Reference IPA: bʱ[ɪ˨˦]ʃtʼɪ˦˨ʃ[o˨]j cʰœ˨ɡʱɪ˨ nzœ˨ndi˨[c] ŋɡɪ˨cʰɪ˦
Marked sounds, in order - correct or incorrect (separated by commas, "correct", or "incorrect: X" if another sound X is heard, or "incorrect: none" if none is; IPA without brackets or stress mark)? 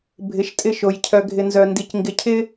correct, correct, correct